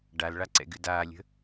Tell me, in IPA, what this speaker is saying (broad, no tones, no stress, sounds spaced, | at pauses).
ɖ a l ɭ a ǀ ɛ̰ ɡ ɨ d aː lʲ ə̤